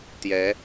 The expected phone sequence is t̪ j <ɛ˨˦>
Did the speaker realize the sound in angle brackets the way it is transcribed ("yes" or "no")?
yes